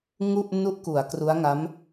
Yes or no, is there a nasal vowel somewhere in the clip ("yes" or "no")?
no